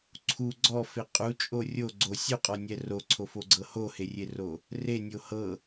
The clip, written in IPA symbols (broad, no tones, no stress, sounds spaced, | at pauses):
ǀʰ u ɡ͡ǀ ɔ f e qʼ u t͡ʃʼ o rʲ o ɡ͡ǀ o sʲ u qʼ ɔ nʲ ɛ r o ǀʰ o f o ɡ͡ǀ ɤ h o h e rʲ e r o | r e nʲ o h ɤ